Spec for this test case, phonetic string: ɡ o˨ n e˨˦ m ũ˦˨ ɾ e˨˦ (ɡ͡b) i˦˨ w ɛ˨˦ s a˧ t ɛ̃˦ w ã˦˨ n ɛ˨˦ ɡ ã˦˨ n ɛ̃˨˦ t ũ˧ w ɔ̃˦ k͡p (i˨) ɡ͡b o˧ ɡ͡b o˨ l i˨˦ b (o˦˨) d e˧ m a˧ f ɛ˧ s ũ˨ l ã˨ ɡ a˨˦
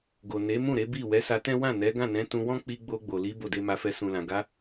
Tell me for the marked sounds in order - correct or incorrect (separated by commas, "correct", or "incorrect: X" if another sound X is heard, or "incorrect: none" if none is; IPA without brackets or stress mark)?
incorrect: b, incorrect: i˧, correct